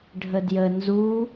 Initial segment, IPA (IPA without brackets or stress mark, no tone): ɖʱ